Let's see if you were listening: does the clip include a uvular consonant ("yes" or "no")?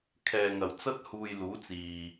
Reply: no